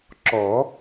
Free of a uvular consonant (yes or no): yes